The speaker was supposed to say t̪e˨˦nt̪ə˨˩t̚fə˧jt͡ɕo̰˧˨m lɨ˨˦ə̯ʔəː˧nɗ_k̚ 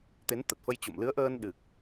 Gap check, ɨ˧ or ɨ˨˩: ɨ˨˩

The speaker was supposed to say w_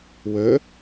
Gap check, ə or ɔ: ə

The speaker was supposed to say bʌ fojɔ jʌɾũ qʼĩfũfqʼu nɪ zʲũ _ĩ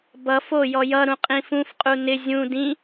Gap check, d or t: d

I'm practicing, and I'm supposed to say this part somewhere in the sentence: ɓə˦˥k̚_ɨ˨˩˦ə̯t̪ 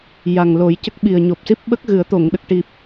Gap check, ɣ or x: ɣ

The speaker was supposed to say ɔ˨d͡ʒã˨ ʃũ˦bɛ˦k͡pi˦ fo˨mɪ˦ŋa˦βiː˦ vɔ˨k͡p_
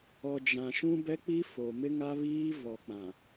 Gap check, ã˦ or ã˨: ã˨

